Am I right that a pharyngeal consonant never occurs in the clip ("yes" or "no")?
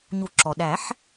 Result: no